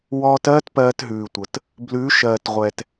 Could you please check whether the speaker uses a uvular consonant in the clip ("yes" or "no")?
yes